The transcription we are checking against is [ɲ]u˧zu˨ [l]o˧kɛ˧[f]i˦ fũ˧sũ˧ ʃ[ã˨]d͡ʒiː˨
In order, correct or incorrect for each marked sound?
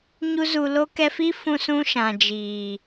correct, correct, correct, correct

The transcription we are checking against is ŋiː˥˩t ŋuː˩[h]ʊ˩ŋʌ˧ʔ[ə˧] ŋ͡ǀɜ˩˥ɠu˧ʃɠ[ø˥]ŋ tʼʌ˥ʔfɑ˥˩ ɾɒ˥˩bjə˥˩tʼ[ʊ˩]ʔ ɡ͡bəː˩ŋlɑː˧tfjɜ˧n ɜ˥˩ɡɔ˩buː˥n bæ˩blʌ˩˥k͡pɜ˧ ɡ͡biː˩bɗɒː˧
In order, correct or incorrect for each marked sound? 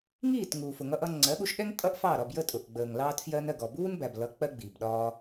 incorrect, incorrect, incorrect, correct

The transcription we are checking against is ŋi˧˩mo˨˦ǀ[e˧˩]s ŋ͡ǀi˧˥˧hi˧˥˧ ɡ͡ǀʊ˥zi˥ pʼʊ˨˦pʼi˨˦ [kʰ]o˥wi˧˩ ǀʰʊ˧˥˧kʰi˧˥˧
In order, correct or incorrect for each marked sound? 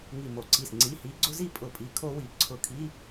incorrect, correct

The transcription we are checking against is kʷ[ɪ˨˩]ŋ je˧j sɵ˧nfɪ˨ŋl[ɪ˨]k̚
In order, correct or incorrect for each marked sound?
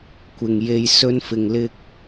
incorrect, incorrect

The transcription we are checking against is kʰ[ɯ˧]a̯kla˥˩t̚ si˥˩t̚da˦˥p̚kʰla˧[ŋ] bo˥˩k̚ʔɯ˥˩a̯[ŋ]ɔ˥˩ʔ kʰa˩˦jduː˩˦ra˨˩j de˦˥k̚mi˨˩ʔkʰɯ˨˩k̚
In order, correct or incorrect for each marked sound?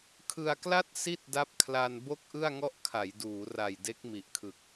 correct, incorrect, correct

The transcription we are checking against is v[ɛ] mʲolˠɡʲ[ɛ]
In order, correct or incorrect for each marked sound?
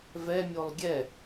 correct, correct

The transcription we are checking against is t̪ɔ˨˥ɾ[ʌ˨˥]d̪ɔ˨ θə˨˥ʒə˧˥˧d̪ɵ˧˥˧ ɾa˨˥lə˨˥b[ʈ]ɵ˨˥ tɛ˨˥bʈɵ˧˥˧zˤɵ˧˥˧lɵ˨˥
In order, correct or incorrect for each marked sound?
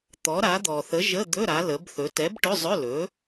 incorrect, incorrect

